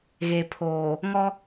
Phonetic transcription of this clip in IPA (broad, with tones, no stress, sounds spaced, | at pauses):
ɣ e˨ pʰ oː˨ | ŋ ɔ˦